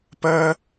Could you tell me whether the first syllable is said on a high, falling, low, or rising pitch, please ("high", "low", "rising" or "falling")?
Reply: high